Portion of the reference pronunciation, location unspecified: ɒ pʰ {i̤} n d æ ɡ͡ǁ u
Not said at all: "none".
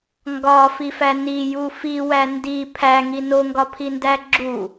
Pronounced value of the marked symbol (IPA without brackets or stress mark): i